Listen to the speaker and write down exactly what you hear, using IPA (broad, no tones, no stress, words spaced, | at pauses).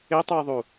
etˤujðˤu